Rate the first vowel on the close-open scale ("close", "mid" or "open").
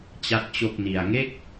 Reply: open